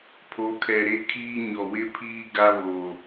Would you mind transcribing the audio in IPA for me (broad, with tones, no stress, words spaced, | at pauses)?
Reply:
pʰo˨˦kʰɛ˨ ɾe˦kʰiː˦ ɲɔ˨wɪ˦pʰiː˦ ɡa˦βo˨